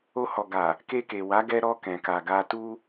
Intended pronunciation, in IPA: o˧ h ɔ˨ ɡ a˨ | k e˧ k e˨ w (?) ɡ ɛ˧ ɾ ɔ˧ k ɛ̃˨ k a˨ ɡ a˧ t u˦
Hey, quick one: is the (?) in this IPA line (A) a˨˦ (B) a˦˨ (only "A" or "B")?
A